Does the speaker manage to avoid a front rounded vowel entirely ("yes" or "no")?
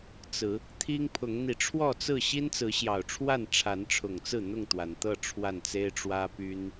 no